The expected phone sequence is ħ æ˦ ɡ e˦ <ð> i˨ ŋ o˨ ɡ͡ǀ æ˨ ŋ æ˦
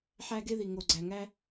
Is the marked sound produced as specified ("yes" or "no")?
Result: yes